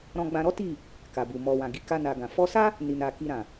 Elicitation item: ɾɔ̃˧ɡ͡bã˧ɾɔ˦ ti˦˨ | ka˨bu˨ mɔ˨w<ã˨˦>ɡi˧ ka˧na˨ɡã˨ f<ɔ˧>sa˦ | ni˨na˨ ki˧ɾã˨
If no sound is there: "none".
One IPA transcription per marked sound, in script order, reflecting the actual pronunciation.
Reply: ã˨, ɔ˧

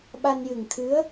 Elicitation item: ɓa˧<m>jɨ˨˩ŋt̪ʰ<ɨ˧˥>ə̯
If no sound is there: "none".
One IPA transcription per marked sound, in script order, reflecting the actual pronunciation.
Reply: n, ɨ˧˥

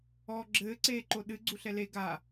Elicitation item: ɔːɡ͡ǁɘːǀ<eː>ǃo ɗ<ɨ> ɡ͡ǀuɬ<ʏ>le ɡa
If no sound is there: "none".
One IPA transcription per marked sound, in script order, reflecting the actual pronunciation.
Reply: eː, ɨ, ɛ

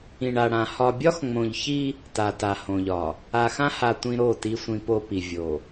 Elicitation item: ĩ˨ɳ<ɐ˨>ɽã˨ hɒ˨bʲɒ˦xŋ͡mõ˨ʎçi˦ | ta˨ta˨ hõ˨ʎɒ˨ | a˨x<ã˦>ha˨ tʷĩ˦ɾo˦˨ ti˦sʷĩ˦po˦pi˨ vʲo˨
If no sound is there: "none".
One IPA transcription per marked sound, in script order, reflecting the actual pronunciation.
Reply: a˨, ã˦

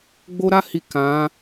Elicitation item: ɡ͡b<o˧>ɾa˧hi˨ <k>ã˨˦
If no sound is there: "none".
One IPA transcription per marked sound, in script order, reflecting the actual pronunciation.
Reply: o˧, k

